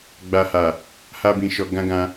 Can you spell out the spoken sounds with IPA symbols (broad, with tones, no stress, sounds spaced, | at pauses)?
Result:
ɡ͡b a˨ h a˨ | h a˧ b ĩ˨ ʃ ɔ˨ ɡ ã˧ ɡ ã˧